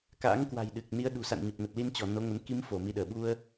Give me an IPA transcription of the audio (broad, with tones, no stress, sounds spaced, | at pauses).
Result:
k a̰ː˧˥ ŋ k w a̤˨˩ j ɗ ɨ˨˩ k̚ n i˨˦ ə̯ ɗ ṳ˨˩ s a̰˧˨ n ɲ ə˨˩ p̚ n ə˨˩ t̚ l i˧ n t͡ɕ ɔ˧˩ n o˨˦ ŋ ə˨˦ n k i˨˦ m f o˧˩ m i˨˦ ɗ əː˧˩ ɓ u˧ ə̯